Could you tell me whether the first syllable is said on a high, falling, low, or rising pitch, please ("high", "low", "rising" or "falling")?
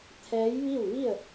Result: rising